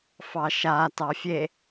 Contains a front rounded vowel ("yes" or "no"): no